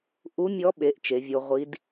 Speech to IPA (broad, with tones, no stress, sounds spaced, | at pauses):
ʔ u˧˥ mʲ ɔ˧˥ ɓ e˩˥ ʔ t͡ʃ e˩˥ vʲ o˧˥ ʁʷ i˧˥ d